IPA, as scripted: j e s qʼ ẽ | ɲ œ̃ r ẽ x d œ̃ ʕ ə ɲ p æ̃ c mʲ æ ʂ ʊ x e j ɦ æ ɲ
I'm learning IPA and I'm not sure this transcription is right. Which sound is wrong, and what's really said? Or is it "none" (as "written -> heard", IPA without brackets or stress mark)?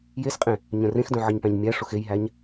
c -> ɲ